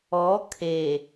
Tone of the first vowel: rising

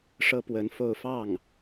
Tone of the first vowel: high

